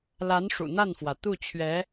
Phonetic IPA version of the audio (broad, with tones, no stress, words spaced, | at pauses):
la˧˥n ʂṵ˨˩n̪a˥˩nfwä˩ t̪u˥˩ t͡ɕʰɥɛ˧˥